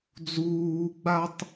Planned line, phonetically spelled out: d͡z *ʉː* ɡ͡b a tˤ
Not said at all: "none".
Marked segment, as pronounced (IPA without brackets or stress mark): uː